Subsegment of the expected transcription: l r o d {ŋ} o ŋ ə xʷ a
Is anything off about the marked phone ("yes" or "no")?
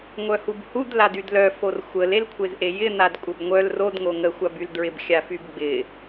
no